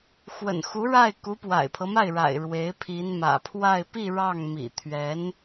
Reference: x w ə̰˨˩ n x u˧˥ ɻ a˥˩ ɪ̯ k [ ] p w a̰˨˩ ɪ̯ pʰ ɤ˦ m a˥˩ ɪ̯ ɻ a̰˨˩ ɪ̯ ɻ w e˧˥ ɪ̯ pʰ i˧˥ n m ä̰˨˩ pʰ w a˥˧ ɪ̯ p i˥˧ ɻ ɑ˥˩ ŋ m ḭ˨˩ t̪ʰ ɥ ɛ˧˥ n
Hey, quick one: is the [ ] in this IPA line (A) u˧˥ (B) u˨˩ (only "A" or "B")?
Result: A